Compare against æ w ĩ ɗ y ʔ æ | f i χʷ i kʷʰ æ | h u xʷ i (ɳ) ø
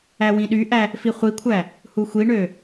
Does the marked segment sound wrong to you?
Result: no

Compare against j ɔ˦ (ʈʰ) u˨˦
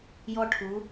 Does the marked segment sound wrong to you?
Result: no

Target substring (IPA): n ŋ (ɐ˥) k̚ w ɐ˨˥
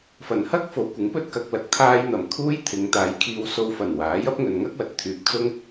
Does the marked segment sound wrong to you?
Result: no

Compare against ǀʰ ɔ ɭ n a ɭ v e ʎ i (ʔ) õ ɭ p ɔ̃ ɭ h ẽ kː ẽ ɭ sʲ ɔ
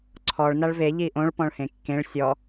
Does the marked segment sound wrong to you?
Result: no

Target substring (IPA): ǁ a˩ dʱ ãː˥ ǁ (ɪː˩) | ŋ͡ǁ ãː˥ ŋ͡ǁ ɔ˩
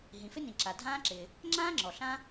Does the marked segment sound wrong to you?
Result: no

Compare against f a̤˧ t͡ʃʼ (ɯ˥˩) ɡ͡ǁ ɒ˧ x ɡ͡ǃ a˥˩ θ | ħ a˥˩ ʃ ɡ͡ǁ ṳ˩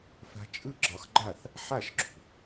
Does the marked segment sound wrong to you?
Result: no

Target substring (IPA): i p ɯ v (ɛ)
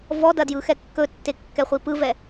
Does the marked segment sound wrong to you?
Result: no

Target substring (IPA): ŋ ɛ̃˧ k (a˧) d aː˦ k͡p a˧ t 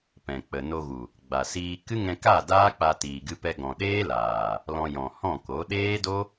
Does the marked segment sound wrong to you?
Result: yes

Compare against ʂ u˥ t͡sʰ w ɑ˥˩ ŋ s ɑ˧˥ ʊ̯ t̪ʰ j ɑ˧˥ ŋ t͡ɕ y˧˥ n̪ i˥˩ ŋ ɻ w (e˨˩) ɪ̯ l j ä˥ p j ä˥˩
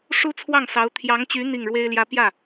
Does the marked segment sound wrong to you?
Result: yes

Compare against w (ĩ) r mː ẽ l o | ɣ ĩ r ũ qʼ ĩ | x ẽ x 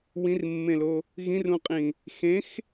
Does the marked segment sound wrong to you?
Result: no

